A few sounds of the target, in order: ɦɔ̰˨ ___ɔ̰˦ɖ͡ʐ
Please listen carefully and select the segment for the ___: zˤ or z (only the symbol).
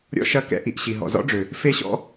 z